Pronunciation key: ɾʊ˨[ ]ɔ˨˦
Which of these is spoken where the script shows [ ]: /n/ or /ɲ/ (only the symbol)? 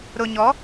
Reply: ɲ